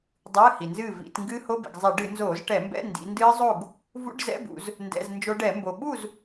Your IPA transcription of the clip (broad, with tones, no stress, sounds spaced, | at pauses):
dˤ ɨː˧˥˧ h i˩ n z ɨː˥˨ v ḭ˧˩˧ t ŋ ɡ ɨː˦˥ h o˧˥˧ b ḭ˩ ɡ zˤ ɛ˧˩˧ ɖ ɨ˧˩˧ n z oː˧˩˧ z ʈ ɛ˧˩˧ m b ɛ̰˧˥˧ n d ḭ˩˧ n d ɨː˦˥ zˤ o˥˨ ɡ | v ṵ˧˥˧ ɖ z ɛ̰˧˥˧ b ṵ˧˩˧ z | n d ɛ̰˧˥˧ z n d͡ʒ o˦˥ ɖ ɛ˧˩˧ m b o˩ ɓ u˥˨ z